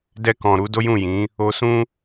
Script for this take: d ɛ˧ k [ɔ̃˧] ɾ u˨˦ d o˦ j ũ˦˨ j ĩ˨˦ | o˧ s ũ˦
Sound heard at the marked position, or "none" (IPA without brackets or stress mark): ɔ̃˨